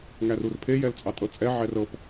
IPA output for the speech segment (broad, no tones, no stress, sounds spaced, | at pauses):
ŋ æ r u r pʰ e j ɛ l t͡sʼ ɑ tʼ ɤ t͡sʼ ɛ ʕ ɛ r ɤ p